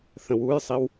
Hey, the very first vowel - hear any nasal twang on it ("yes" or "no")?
yes